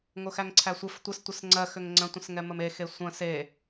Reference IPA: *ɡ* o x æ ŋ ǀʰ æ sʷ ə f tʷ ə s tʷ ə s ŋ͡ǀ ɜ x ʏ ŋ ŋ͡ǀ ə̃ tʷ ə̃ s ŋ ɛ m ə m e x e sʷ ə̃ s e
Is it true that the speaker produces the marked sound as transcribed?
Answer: no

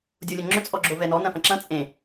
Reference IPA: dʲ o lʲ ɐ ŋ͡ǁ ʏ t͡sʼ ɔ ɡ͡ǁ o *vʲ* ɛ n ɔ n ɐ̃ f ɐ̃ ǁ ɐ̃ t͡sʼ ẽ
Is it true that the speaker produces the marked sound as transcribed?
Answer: no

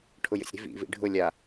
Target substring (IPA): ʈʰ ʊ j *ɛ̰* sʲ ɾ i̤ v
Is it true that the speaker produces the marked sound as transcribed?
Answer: no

